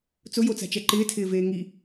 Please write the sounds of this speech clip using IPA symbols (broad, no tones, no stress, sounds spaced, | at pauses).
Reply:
t͡s ʊ j o t͡s a̤ t͡ʃ ɛ ǃ ɪː tʰ ɪː v eː ŋ i